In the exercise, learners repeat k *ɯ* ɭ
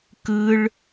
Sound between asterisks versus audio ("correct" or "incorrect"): correct